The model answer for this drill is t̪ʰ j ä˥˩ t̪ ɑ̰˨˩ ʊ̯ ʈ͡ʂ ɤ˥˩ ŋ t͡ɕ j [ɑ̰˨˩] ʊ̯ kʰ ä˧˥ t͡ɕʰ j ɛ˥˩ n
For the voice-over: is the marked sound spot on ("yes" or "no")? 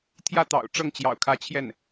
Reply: yes